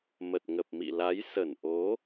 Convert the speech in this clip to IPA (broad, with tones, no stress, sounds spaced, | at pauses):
m ə˨˩ t̚ ŋ ə˨˩ p̚ m ḭ˧˨ l a˨˦ j s ə˧˩ n ʔ o˨˦